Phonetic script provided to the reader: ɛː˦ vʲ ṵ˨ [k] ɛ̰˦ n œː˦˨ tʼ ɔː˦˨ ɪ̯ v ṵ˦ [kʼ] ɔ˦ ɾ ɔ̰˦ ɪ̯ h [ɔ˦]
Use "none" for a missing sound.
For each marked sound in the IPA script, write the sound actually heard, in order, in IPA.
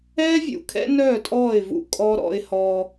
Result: kʰ, kʼ, ɔ˦

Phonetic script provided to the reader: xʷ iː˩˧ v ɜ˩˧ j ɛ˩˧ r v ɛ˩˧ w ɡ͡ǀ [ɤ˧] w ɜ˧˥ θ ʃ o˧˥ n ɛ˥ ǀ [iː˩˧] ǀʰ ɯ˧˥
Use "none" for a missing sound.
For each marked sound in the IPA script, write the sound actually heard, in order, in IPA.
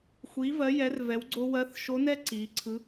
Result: o˧, iː˩˧

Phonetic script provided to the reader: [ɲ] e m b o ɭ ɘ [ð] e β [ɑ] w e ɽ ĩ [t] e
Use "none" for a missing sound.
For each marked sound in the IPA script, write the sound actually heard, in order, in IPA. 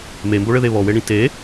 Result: m, ð, ɔ, t

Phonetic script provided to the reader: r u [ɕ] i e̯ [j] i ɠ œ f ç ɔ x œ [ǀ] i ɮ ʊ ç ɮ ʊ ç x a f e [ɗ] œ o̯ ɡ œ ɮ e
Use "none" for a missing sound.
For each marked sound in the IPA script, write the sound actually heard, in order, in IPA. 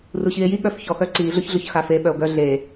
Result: ɕ, j, ǀ, ɓ

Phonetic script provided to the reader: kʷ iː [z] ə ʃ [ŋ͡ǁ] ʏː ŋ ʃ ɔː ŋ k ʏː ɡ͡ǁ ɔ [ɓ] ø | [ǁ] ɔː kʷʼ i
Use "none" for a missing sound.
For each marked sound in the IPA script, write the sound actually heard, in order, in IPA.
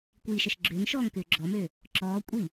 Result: ʃ, ɡ͡ǁ, m, ǁ

